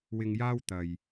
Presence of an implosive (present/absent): absent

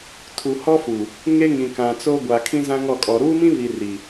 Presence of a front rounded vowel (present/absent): absent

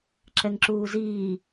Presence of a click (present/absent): present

